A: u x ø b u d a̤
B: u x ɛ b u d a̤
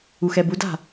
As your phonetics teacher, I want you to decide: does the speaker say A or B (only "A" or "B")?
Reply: B